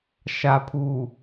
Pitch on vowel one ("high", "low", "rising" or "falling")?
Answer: low